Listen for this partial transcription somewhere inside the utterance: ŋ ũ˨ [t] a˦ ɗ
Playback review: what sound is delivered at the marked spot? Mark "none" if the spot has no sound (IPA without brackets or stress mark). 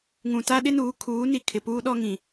t